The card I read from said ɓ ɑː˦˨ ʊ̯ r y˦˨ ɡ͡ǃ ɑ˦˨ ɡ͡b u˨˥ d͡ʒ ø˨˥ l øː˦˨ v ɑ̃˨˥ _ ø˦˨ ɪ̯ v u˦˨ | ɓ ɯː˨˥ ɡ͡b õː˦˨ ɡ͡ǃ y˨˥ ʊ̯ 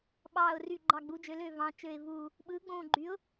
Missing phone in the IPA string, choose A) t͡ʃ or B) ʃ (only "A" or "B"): A